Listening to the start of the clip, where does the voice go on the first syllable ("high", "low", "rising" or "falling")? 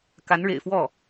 rising